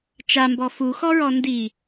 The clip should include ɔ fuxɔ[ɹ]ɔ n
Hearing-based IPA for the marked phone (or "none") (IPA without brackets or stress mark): ɹ